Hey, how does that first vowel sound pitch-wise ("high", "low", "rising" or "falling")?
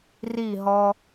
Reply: falling